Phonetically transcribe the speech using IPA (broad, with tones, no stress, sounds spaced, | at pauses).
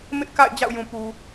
m ɪ˦ ʔ k a̰˦˨ ɪ̯ d͡ʑ a̰˦˨ ʊ̯ j ũ˨ p u˨